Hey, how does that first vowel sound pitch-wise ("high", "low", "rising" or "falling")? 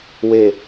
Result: low